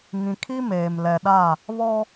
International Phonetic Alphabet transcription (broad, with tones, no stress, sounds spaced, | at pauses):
ŋ ĩ˨ kʰ i˦ m eː˨ m l ɛ˨ ɗ a˦˨ | β ɔ˦